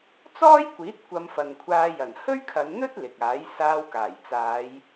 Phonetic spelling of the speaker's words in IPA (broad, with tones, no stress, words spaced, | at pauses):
t͡sɔː˥jkʷiː˨˥t̚ kʷɐ˧mfɐ˨nkʷʰaː˧jɐ˨˩n hɵ˥ɥkʰɐ˨˧nn̪ɵ˥t̚ lɪ˨k̚aː˨˥j saː˧wkaː˨˩j t͡saː˨˧j